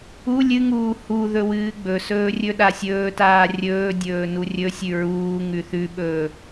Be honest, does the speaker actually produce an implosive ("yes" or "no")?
yes